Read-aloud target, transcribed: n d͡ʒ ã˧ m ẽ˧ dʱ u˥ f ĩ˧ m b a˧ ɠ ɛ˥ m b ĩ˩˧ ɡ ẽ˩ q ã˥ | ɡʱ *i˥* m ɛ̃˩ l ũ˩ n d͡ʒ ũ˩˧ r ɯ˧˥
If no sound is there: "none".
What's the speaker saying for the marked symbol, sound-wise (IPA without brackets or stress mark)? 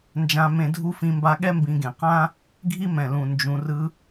i˥